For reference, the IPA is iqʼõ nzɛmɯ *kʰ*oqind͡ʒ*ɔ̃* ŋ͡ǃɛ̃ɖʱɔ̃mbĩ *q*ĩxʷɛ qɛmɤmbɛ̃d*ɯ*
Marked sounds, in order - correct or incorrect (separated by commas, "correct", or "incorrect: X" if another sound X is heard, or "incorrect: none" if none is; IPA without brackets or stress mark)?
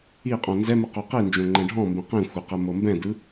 incorrect: q, incorrect: õ, correct, correct